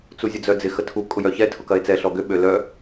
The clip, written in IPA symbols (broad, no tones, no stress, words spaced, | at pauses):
t͡suzʲəd͡zœd͡zɪ xətʰu kʼʊjœçɛ tʰʊkɐe̯t͡sɛ ɬɔɡʏ ɓølœ